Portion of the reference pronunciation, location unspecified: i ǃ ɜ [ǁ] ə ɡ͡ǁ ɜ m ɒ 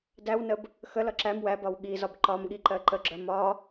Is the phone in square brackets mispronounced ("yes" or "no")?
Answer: yes